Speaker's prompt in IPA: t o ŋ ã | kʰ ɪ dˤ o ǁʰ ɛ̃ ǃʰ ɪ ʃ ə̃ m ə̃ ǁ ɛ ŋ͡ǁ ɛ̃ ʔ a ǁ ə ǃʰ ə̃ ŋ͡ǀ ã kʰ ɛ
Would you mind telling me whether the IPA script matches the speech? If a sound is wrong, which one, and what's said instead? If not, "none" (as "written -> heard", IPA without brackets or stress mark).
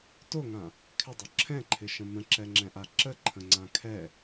none